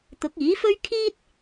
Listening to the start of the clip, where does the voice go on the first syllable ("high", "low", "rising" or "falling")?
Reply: rising